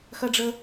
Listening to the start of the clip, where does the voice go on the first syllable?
high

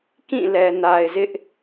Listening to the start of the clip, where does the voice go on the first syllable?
falling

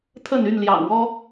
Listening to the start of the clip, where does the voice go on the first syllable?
falling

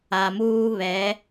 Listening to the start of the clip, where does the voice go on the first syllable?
low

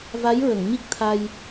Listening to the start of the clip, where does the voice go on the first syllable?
rising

